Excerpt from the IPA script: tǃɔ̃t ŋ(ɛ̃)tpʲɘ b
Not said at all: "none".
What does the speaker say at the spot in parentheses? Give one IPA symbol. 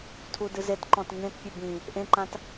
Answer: ẽ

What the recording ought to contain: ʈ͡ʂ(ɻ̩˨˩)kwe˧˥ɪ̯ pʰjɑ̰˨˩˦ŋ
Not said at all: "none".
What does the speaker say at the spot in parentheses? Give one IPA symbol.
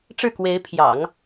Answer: ɻ̩˥˩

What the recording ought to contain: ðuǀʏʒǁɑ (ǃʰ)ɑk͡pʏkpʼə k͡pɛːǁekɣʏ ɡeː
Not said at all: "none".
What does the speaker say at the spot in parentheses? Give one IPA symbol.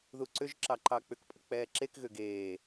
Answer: ǃ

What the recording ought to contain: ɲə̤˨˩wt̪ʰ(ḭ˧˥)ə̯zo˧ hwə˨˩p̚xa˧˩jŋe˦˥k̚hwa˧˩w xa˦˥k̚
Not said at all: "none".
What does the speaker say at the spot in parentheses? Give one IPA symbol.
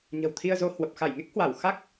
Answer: i˧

